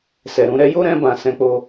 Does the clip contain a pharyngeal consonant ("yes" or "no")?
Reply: no